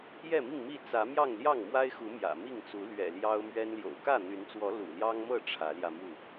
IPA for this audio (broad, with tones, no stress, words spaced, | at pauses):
jɛ˥˨mi˥˨ŋmi˥˨ t͡sä˨˦mjɑ˥˨ŋ ljɑ˥˨ŋmwa˦ɪ̯xu˨˦ mjä̰˨˩ mi˥˨ŋt͡su˨˦ lɥɛ̰˨˩ljɑ˦ʊ̯ mɥɛ˦nljo̰˨˩ʊ̯ kä˥˨n̪y˨˦nt͡swɔ˨˦ lṵ˨˩ljɑ˦ŋmɤ˥˨ ʈ͡ʂʰä˨˦ljä˧mu˥˨